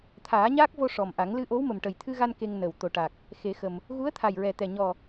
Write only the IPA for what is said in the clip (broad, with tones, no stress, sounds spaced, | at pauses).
t̪ʰ aː˨˩˦ ɲ aː˦˥ k̚ v o˧ ʂ ɔ˨˩ m ʔ a˨˩˦ ŋ l ɨ˧ ʔ o˧˥ w m ə˨˩ m ʈ ə˨˩ j t̪ʰ ɨ˧ ɣ a˧ n k e˧ ŋ n ə˨˩ w t̪ o˨˩ ʈ a˨˩ k̚ | x e˨˩˦ x ə˨˩ m | ɣ u˧˥ ə̯ t̪ʰ a˨˩ j ɹ ɛ˨˩ t̪ ɛ˨˩ ɲ ɔ˨˩